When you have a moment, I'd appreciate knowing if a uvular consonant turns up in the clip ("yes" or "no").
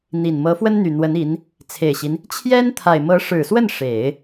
no